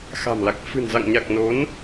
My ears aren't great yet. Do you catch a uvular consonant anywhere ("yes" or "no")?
no